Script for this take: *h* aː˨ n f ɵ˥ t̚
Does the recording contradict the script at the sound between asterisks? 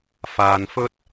yes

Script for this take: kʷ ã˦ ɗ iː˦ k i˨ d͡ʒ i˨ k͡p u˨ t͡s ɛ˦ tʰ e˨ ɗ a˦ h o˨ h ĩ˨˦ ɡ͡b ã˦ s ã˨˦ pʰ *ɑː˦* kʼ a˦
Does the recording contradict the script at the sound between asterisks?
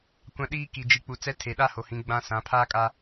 yes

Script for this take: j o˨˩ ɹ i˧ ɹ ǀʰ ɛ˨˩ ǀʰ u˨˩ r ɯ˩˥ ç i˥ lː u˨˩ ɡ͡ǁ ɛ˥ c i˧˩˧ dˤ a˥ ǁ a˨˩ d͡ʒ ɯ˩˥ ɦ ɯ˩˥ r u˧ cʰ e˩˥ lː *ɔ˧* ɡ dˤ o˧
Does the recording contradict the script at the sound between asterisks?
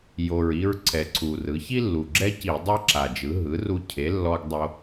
no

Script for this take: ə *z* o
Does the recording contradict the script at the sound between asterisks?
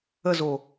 no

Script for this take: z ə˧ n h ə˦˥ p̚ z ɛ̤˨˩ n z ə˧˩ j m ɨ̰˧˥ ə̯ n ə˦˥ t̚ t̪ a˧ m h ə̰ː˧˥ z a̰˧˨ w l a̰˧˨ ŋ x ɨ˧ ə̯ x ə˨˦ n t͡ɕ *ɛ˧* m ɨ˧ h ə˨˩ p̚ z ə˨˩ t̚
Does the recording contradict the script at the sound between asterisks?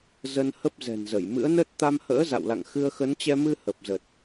no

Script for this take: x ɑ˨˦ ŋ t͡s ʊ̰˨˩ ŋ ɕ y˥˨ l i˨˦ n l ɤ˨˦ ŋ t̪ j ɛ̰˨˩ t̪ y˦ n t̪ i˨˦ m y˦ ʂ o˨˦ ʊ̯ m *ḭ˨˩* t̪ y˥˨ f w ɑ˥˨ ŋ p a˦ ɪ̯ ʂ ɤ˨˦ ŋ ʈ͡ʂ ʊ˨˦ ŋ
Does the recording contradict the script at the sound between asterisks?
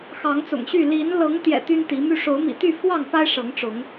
no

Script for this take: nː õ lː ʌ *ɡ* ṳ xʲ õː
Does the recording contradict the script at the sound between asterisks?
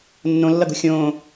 no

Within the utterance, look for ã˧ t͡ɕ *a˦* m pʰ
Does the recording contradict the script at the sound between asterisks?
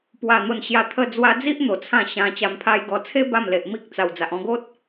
yes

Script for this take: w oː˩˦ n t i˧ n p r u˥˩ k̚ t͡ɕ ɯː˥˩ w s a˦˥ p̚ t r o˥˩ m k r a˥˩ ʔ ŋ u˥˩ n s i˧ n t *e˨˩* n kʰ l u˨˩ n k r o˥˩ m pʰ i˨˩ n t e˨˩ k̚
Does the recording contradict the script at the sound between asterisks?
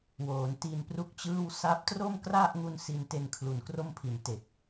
yes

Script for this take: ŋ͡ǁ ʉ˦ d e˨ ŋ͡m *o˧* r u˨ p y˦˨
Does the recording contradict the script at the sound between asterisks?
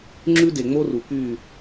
yes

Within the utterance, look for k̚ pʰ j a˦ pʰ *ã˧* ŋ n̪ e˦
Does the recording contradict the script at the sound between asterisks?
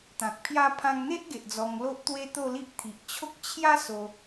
no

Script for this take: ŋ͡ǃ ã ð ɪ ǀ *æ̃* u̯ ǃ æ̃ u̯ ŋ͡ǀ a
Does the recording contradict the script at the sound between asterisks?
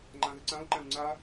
yes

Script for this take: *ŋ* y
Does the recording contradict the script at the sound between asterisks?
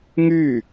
no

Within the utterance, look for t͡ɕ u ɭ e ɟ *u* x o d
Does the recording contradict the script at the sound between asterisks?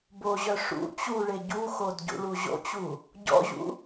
no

